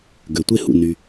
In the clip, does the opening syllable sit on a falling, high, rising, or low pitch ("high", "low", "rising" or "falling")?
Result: low